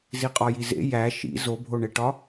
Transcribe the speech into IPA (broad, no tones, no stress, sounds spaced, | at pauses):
z i qʼ ɒ j i z ḛ j æ ʃ ḭ z o bʱ o ɳ e ʈ ɒ